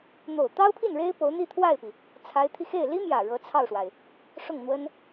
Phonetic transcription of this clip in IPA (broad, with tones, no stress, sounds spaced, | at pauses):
n̪ o˨˩ ʊ̯ t̪ ɑ˥ ʊ̯ pʰ i˥˩ n ɻ e˥ ɪ̯ p o˧˥ ʊ̯ n̪ i˥˧ t̪ʰ w a˥˩ ɪ̯ p i˩ | t͡sʰ a˧˥ ɪ̯ t̪ʰ i˧ x e˥˩ ɪ̯ l i˥ m j ä˨˩ ɻ ɤ˧˥ t͡sʰ ɑ˥˩ ʊ̯ ʂ w a˩ ɪ̯ | ʂ ʊ˥˩ ŋ n̪ w ə˥ n